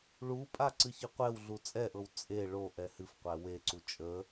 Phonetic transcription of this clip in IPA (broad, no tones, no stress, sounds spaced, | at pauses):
ɭ u pʼ a ǀ ɨ ç ɨ qʷ ɛ w ɮ u t͡sʼ ɛ ʔ ɤ w t͡sʼ e ɭ o ʔ ɛ h ɨ f qʷ æ w e ǀ u t͡ʃʼ ə